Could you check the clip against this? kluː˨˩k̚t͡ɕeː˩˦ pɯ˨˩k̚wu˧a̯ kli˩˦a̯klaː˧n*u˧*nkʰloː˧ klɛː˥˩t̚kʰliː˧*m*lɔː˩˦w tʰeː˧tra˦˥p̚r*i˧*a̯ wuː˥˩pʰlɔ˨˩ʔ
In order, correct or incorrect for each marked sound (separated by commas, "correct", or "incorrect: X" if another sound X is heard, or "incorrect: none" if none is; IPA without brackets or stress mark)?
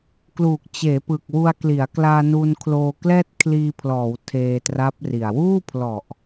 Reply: correct, incorrect: pʰ, incorrect: i˨˩